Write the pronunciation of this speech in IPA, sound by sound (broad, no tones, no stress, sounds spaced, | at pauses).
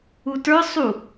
u t ə˞ sˤ u